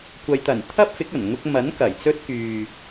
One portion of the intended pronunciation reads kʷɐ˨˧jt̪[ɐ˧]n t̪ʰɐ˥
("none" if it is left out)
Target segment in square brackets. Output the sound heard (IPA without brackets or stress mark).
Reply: ɐ˨˩